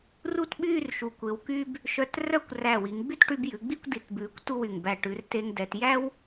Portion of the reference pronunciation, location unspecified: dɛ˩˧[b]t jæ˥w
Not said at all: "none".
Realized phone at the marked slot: none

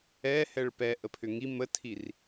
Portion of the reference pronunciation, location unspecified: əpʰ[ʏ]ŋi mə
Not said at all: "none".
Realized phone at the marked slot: ʏ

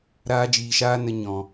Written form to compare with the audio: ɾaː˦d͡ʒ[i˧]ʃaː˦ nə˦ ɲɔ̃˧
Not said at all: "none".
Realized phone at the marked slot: iː˧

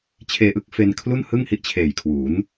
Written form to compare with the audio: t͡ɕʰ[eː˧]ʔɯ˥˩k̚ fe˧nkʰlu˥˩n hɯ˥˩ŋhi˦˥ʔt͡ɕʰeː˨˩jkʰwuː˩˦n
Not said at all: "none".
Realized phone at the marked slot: eː˧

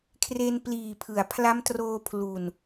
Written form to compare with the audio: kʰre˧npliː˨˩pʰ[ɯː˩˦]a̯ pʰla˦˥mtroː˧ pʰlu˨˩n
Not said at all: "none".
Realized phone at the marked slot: ɯ˩˦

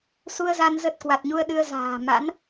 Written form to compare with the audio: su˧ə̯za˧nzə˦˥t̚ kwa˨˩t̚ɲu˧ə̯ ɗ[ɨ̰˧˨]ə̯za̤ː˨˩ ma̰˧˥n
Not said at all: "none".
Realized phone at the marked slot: ɨ˧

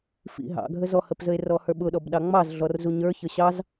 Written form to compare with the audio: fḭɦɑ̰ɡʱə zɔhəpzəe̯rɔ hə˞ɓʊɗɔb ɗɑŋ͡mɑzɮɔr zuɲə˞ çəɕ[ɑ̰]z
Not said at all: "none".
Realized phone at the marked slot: ɑ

